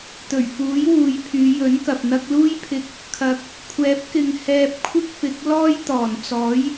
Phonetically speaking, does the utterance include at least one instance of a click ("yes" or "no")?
no